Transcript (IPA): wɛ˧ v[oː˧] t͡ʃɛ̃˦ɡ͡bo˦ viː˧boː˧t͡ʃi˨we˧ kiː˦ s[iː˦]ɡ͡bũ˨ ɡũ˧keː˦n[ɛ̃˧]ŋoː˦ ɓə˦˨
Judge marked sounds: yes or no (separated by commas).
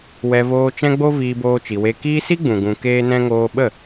yes, no, no